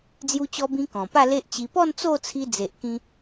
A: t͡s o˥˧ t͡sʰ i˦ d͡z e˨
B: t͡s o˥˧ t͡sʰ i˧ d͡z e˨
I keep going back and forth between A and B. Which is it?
B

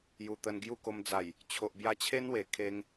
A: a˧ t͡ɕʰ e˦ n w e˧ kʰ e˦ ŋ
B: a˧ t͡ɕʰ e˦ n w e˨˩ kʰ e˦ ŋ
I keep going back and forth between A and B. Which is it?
B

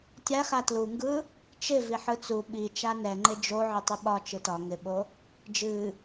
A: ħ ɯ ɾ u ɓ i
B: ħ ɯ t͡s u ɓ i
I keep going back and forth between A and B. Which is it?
B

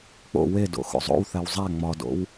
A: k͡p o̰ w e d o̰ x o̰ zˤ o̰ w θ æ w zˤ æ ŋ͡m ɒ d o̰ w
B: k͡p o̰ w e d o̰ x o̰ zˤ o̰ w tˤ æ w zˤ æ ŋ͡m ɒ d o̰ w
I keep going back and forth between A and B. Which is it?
A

